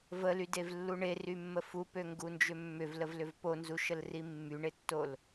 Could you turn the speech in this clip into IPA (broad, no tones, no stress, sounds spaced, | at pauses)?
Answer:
v ə l y d e v lː u ɳ e r y mː ə f u p ø ŋ ɡ u n d͡ʒ ʏ mː ʏ v l ə v l ʏ v p o n z u ʃ ə l r i mː y ɳ e tː o l